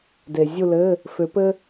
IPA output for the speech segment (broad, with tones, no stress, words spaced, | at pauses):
de˩zʲu˦˨lɘ˧˥˧ | fʏ˨˥pɘ˥